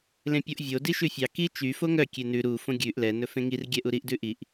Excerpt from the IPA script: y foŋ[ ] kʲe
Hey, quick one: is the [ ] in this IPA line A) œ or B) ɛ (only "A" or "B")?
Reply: A